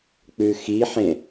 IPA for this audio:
k͡p ʉ x i ħ ẽ

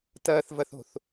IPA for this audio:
t ɐː θ v ɐ θ o̤ θ

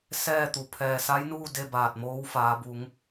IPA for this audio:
s ɛː˥˨ t̪ u˩ pʰ ɛː˧˩ s a˧˥ j n uː˥˨ d e˥˨ b aː˧˩ t̚ m oː˧˥ w f aː˩˧ b u˩˧ ŋ

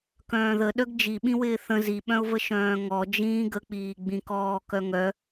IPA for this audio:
k œ̃ː ð ə ɗ œ ɡ d͡ʒ i ɓ ĩ w ɪː θ ə̃ z i ɓ œ̃ ʊ̯ v ə ʃ œ̃ː ŋ ɔ d͡ʒ ĩː ɡ ə k͡p iː ɡ͡b ĩ k ɔː k œ ŋ œ

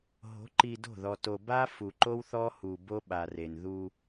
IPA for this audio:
ɦ o̤˨˦ ǃ i˨ d o̤˦˨ ð ɔ˨ t o˨ b a˦ f u˨ ǃ o˦ w θ ɔ˦ h u˨ b o˦ ɓ a˨ r e˨ n ð u˦

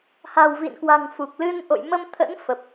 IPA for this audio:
h a̤˨˩ w v ḭ˧˨ n k w a̤˨˩ ŋ f u˨˩ k̚ l ɨ˧ n ʔ o̰˧˨ j m ə˧ m t̪ʰ ə̰˧˥ n f ə˨˩ p̚

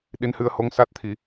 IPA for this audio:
ɗ i˧˥ n h ɨ˧ ə̯ h o˧˥ ŋ s a˦˥ t̚ t̪ʰ i˨˩˦

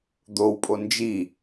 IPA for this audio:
d̪ o w pʼ o n d͡ʒ i

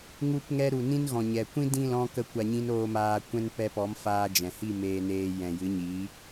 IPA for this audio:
ŋ u˧ p ŋ ɛ˧ ɾ u˨ n ĩ˦ n ɣ ɔ̃˨ ɲ ɛ˨ kʷ ĩ˦ d ĩ˦˨ l ɔ̃˧ k ə˦ kʷ a˧ ɲ ĩ˦ n oː˧ m aː˧ kʷ ɛ̃˦ n p ɛ˧ p ɔ˨˦ m f aː˧ d͡ʒ ɛ̃˨ h i˦˨ m eː˧ n eː˧ j ɛ̃˨ j ɨ˨˦ ɲ iː˨˦

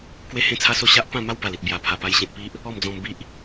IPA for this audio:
k w e˦ h ẽ˦ t͡sʰ a˦ s o˥˧ ɕ a˦ ʔ p ã˥˧ m a˦ w b a˨˩ l i˨ t̚ b j a˨˩ pʰ a˨˩ p a˧ j ɕ ẽ˨ t̚ p i˦ ʔ | ɔ˥˧ m d͡z ɔ̃˧ m b i˦ ʔ

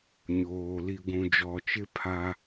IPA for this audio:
ɲ oː˨ l i˨ ɡʷ ũ˨ d͡ʒ ɔ˨ t͡ʃ ɪ˦ pʰ a˦

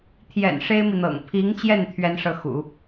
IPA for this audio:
t̪ʰ j ɛ̰˨˩ n ʂ e˥ ɪ̯ m i˨ n̪ ɤ̰˨˩ ŋ pʰ i˧˥ ŋ t͡ɕ j ɛ˥˩ n t̪ʰ ɥ ɛ˥ n ʂ ɤ˥˩ x ṵ˨˩˦

